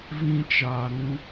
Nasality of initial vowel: nasal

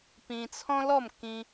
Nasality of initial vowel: nasal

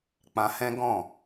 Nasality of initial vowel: nasal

